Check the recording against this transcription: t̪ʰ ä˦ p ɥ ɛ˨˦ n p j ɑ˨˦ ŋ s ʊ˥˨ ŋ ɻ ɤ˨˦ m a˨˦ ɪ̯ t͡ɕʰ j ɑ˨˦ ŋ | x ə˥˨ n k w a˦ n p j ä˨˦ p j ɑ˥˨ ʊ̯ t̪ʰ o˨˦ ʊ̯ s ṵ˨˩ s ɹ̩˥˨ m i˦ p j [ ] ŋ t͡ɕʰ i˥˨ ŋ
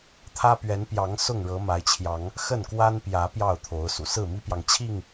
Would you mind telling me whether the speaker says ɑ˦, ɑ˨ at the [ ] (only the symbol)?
ɑ˨